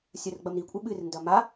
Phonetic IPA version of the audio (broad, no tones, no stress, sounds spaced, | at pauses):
sʲ ɐ r ɡ͡b ɐ m ɾ i kʷʼ ɨ ɓ ɨ r n d ɐ m a